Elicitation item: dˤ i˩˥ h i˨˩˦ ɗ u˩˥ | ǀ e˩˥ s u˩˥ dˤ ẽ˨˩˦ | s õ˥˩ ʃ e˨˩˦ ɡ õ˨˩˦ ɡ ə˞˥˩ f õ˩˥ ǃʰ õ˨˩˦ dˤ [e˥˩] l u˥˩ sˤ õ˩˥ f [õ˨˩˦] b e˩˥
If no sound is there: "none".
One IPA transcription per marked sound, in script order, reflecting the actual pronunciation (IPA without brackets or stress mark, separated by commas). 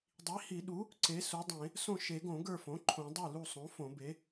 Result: e˥˩, õ˨˩˦